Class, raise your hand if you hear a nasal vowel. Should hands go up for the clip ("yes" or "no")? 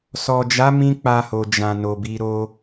yes